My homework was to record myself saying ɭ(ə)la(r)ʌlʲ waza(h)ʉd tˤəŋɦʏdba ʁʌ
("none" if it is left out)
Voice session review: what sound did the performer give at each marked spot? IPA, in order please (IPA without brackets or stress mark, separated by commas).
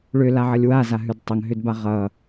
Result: ʏ, ʕ, ɦ